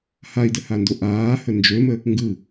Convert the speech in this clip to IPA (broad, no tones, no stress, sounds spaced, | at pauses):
h a i̯ d ə h a n d o ʔ aː h ə n d͡ʒ ø m ə | ŋ ɡ ɯ